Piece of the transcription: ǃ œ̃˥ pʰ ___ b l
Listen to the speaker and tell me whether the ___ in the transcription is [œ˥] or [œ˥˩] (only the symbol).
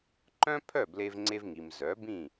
œ˥˩